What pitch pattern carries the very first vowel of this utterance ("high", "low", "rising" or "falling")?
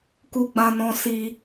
high